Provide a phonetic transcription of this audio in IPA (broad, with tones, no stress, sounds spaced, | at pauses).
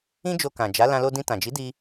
ĩ˦ d͡ʒ o˧ k ã˨ d͡ʒ a˨˦ l ã˧ l o˧ d ĩ˧ t ã˨ d͡ʒ i˨˦ d i˧